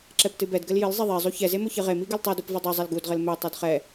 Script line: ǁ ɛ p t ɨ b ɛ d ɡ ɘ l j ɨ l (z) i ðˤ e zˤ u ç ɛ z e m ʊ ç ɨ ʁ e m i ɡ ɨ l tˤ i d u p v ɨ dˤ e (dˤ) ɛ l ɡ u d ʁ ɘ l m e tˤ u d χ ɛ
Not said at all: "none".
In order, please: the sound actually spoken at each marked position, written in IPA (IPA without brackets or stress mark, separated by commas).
zˤ, zˤ